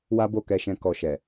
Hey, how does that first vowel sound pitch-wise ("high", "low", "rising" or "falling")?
high